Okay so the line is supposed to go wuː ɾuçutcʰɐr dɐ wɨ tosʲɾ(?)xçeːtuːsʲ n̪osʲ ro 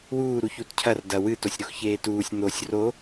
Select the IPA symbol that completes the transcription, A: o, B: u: A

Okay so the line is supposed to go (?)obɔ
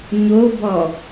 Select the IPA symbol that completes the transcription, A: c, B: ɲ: B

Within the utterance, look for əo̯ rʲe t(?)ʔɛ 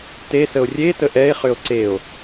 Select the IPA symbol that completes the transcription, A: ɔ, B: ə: B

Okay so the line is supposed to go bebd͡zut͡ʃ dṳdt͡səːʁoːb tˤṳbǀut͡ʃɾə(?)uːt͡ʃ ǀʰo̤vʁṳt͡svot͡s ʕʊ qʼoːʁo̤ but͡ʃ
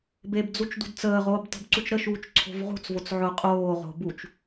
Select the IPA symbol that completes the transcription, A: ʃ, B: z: A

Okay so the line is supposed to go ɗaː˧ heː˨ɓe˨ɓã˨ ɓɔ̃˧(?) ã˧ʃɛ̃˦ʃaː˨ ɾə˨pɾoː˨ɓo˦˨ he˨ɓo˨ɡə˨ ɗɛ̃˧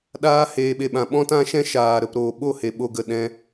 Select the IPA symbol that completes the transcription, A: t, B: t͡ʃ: A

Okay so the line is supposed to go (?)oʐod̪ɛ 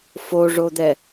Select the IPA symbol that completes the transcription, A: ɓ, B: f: B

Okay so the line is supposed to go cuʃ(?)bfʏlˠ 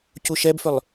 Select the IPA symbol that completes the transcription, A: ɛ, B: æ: A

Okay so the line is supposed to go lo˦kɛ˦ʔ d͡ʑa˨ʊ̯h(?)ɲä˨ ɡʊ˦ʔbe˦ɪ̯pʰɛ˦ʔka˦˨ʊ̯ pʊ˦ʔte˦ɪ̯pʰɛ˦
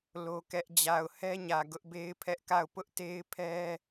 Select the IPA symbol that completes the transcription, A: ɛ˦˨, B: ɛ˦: B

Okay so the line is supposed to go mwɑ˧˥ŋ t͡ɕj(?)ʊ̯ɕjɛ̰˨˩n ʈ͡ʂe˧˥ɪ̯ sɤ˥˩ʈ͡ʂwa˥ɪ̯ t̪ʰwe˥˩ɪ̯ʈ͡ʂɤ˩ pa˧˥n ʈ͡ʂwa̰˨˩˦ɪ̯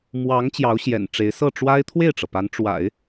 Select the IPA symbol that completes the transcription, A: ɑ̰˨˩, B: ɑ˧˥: B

